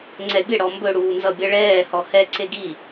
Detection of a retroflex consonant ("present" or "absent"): present